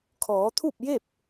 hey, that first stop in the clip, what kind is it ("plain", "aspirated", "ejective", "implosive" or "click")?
aspirated